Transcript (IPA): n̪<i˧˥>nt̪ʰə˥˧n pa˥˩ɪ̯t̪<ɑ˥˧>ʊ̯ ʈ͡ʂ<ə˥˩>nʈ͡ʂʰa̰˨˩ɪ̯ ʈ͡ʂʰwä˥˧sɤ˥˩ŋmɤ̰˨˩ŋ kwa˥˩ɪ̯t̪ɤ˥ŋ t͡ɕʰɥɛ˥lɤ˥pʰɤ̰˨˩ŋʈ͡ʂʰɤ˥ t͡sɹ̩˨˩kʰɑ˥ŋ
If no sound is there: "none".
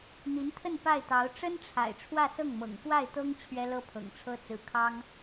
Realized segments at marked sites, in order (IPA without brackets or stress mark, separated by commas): i˧˥, ɑ˧˥, ə˥